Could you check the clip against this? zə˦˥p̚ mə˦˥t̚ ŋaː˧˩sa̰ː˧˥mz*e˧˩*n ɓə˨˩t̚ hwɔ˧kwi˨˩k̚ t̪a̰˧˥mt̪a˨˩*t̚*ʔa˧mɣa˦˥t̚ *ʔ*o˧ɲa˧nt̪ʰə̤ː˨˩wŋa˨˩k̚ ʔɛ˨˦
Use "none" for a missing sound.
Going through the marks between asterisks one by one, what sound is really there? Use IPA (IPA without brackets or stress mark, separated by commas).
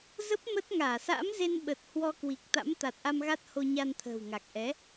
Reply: e˧, t̚, h